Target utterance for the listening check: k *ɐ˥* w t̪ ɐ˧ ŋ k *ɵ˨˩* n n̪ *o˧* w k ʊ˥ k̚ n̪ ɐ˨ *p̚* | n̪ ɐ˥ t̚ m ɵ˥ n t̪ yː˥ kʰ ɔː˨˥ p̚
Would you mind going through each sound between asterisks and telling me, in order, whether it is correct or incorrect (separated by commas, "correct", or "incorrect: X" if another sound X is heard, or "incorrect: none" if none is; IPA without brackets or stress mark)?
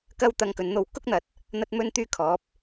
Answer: correct, incorrect: ɵ˨˧, correct, incorrect: t̚